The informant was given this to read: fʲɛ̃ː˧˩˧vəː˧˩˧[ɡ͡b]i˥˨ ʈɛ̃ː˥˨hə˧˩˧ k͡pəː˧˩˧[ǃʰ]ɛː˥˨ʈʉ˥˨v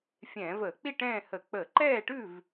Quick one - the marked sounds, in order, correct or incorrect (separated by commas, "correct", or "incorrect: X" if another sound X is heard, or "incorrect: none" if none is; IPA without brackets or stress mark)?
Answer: incorrect: k͡p, incorrect: ǃ